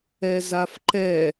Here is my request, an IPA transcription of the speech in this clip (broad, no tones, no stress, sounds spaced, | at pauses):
ɛ z a f ǃ ɛ